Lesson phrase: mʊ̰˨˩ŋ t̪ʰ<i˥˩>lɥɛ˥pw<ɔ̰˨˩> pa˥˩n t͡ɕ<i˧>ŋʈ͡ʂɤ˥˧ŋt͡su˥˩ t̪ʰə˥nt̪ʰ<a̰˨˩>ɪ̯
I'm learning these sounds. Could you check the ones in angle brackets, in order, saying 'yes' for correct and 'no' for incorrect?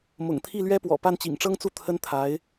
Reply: yes, yes, no, no

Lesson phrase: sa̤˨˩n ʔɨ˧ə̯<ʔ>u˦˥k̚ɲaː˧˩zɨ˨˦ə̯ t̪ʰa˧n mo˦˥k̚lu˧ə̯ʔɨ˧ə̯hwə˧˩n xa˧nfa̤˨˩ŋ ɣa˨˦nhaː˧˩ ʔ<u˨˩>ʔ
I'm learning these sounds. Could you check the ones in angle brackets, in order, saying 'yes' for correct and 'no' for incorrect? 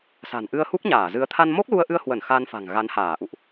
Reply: no, no

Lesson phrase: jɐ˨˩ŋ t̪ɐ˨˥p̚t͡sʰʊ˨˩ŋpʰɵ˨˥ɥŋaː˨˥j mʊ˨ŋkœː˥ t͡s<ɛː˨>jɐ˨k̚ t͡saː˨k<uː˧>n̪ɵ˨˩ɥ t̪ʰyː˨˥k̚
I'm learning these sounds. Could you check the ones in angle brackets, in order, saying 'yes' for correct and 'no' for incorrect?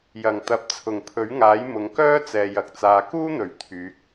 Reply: yes, no

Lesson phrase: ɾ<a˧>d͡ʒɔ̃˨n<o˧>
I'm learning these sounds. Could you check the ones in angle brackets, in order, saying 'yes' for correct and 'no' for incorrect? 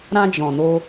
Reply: no, yes

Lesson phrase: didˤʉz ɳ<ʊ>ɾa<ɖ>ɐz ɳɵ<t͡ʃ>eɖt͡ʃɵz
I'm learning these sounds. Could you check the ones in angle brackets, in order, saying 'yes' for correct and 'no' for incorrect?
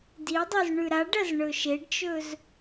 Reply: no, yes, no

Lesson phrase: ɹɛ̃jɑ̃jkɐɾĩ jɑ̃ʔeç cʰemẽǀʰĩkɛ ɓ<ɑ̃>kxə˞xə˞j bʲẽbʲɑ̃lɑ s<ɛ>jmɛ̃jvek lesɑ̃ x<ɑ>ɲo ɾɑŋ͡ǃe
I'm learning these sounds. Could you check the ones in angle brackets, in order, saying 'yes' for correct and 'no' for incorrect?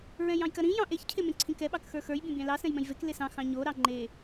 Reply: no, no, no

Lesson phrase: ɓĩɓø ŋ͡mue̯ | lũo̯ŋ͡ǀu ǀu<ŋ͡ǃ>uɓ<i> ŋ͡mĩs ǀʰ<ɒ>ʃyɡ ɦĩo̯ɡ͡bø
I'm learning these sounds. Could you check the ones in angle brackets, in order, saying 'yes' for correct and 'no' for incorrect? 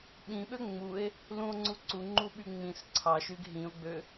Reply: yes, no, no

